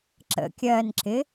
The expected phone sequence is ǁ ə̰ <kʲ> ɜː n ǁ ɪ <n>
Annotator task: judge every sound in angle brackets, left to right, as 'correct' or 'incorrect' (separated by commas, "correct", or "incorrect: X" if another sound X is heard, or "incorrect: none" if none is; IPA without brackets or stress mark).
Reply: correct, incorrect: none